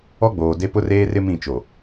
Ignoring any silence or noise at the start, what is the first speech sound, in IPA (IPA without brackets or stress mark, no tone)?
ɔ